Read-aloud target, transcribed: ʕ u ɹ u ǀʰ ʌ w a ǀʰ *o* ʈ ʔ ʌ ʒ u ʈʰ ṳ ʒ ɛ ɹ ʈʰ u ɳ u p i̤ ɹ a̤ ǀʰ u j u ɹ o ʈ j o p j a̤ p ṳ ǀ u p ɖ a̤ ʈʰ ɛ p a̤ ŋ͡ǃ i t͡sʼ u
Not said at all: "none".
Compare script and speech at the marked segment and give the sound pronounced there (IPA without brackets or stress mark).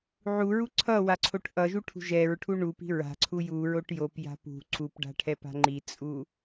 o